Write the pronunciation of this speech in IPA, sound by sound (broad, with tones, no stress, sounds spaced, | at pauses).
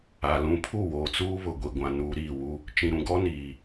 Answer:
a˨ l ũ˨ pʰ u˦˨ w oː˨ t͡s uː˦ β ʊ˨ ɡʷ i˨ ɡʷ ã˨ n uː˦ ɾ iː˦˨ w u˦ | t͡ʃ ĩ˨ ɾ ũ˨ ɡ ɔ˦ n iː˨